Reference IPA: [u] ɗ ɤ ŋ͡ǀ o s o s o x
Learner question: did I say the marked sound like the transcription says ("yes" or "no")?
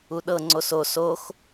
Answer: yes